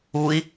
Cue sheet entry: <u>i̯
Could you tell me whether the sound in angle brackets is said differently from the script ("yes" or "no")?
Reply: no